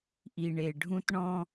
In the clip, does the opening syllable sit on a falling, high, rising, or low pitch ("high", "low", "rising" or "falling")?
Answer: low